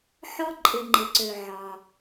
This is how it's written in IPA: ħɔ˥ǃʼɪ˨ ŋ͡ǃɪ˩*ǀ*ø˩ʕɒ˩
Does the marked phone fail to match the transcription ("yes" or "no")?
no